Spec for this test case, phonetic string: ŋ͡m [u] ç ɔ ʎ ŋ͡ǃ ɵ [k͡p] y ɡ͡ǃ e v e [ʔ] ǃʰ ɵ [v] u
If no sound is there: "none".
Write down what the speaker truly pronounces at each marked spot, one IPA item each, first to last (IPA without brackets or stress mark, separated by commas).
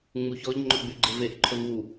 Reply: u, ɡ͡b, ʔ, v